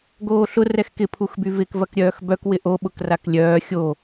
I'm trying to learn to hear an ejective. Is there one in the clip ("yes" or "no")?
no